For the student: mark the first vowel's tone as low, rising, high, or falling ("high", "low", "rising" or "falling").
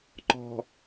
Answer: low